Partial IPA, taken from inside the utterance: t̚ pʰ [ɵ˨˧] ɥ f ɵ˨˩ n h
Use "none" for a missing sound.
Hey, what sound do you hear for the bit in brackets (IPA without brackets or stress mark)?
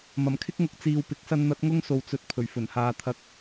ɵ˨˩